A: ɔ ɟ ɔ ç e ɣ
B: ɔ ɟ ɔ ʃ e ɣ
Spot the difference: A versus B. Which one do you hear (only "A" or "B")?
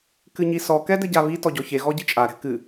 A